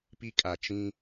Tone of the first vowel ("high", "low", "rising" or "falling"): high